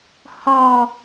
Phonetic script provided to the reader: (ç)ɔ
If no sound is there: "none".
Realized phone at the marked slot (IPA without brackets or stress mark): h